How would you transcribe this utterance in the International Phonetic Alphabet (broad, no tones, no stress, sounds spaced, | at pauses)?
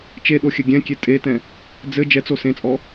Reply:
t͡ʃ e ɗ o xʲ ɘ ɡʲ ɛ̃ kʲ e tʼ e t ɛ̃ | d͡z ɘ d͡ʒ ɛ t͡s o s ẽ t͡sʼ ɔ